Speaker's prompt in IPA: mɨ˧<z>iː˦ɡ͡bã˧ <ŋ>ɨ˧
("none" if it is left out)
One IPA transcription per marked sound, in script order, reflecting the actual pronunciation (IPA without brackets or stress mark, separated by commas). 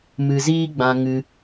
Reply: z, ŋ